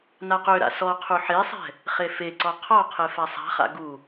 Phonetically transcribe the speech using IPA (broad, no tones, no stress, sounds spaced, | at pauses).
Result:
n a q ø ɾ a̰ s ɔ qʰ u ħ e sˤ ɛ̤ | χ e f e ǀ ɔ qʰ ɔ qʰ e f a sˤ a̤ χ a̰ ɡ u